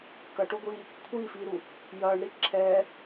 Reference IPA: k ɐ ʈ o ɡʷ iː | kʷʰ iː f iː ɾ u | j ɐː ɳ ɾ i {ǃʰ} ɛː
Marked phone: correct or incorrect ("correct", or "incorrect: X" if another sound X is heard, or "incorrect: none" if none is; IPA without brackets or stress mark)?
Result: incorrect: ǁʰ